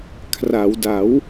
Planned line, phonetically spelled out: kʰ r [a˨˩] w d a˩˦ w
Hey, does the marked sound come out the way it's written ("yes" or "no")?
no